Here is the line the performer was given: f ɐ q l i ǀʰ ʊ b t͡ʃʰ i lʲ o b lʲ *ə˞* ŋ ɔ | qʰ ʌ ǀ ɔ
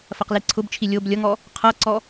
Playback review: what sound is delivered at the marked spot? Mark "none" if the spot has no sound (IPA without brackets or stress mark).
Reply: ʌ